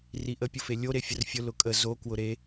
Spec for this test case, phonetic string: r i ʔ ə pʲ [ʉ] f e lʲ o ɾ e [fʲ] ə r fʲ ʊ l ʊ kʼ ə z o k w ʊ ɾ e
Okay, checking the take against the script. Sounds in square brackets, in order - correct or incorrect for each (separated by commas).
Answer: incorrect, correct